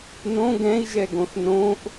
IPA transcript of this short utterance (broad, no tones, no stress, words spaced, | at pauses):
nõ ɡɛ̃i̯ʒɛɡõθ nõʔ